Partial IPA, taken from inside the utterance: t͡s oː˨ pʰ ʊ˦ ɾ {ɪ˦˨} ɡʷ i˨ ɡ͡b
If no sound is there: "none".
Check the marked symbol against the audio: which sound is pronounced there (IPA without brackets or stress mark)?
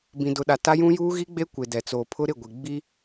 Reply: ɪ˦˨